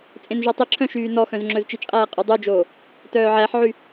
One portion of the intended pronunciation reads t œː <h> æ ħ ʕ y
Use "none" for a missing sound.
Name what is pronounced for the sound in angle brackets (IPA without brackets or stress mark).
ʕ